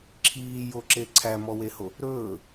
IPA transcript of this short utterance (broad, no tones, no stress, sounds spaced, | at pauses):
ǁʰ iː j o ǁ e ǀʰ æ m ɔ w e h o | ɾ ɵː